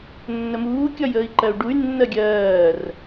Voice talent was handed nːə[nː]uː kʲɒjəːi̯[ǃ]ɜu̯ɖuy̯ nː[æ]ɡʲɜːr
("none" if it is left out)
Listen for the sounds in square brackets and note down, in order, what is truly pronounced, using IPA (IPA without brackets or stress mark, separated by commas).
m, ǃ, ɜ